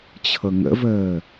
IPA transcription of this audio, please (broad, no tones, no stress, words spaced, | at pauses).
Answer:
t͡ɕʰɤŋə̰vəː